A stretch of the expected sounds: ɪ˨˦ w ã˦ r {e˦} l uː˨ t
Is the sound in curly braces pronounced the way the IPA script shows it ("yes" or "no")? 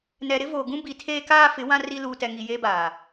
no